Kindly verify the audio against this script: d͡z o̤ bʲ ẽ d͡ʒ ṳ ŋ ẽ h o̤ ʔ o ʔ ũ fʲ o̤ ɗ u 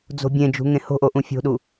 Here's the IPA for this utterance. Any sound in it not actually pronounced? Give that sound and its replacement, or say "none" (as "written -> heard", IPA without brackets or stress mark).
none